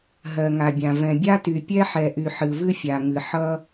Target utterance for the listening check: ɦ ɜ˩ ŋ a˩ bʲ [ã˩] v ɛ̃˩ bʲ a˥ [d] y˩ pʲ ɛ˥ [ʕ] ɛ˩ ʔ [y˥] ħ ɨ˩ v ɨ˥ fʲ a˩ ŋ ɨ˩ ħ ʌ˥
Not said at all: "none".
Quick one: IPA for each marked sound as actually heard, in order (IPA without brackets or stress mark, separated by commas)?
ã˩, t, ħ, y˩